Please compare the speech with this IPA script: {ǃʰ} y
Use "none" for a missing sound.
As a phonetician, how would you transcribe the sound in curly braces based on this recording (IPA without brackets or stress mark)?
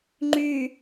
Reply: ŋ͡ǃ